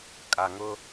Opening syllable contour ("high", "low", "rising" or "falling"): low